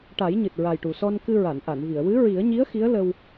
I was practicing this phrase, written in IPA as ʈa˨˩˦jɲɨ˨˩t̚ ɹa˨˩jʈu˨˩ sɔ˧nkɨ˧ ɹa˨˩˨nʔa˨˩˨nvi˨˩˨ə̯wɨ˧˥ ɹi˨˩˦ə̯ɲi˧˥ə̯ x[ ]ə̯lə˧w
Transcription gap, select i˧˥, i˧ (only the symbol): i˧˥